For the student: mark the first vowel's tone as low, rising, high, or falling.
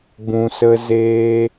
low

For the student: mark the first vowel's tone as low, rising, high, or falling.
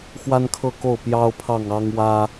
high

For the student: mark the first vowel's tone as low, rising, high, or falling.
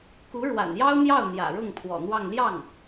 rising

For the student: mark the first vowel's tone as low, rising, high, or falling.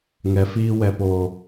low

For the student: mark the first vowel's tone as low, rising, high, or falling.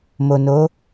low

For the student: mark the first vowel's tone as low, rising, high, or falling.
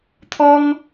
high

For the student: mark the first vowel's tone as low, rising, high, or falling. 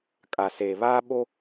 low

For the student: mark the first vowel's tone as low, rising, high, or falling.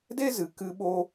high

